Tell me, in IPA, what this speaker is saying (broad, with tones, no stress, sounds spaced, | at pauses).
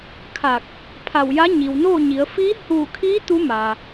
kʰ a˧˩ k̚ | pʰ a˧˩ w j a˧˥ ɲ i˩ w n o˥˨ ɲ i˩˧ ə̯ f i˧˥ h uː˧˩ kʰ iː˧˥ t̪ u˧˥ m a˩